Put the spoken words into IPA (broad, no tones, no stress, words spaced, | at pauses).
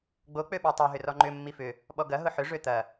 ɡ͡bo k͡pøɓɔtˤœ ɦʏrɔŋ͡ǃʏ mːifʏ | ɓɔɡɐ ɦʊħʏ ʐøt̪ɐ